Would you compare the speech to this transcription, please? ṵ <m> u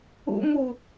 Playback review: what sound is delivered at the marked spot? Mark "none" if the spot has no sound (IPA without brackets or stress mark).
m